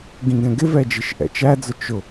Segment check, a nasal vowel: present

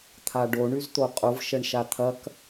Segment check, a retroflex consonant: present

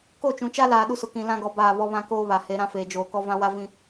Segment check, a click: absent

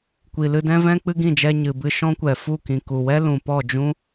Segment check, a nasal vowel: present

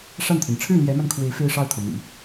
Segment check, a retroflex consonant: present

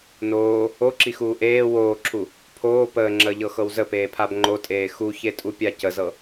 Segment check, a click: present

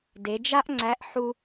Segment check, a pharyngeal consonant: present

